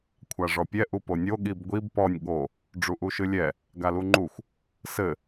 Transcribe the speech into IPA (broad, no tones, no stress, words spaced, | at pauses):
kʷʰaʐɔpʲɛ ʔuponʲo ɠibɡʷib pɔnʲ ɠo | ɖ͡ʐuʔuʃɨlʲɛ | ɡaluŋ͡ǃuxʷ | sɘ